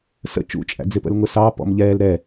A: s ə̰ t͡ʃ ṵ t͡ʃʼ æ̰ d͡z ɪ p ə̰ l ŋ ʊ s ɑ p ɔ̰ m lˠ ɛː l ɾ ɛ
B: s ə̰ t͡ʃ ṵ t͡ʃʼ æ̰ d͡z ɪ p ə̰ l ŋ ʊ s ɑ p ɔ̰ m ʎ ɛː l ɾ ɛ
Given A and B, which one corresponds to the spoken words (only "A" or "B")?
B